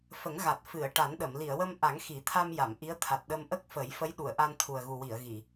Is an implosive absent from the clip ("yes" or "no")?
no